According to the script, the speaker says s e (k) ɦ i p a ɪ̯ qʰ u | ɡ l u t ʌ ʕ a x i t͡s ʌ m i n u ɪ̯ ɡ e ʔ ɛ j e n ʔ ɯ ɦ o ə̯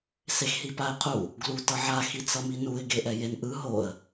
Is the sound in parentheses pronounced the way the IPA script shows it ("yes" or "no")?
no